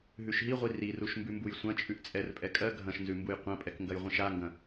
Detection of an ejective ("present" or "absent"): present